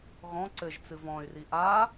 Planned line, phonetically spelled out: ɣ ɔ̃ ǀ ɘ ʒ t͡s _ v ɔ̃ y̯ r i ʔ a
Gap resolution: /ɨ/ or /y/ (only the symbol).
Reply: ɨ